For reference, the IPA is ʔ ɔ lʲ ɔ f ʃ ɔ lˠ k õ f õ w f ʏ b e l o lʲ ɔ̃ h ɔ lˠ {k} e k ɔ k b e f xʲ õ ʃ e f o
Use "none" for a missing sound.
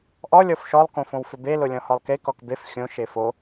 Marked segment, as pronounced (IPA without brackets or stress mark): k